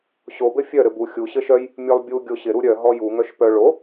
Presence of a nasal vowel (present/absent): absent